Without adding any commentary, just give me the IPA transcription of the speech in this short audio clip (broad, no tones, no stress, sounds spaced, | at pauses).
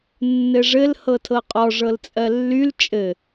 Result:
nː ɘ ʐ ɘ l h ɤ tʰ ɤ qʼ ɔ ʐ ɤ l t͡sʼ ɜ lː y l t͡ʃʼ ɘ